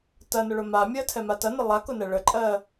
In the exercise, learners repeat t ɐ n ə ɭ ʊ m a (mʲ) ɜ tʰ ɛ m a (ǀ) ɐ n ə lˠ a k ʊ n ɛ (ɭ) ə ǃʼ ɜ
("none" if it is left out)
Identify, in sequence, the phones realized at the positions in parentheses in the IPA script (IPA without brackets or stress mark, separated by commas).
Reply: mʲ, t, ɭ